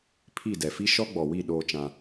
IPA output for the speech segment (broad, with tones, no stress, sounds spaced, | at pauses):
pʰ i˦˨ d ɛ˨ f i˦ ʃ ɔ˦ ɡ͡b ɔ˨ w i˦˨ ɗ oː˦ t͡ʃ ã˦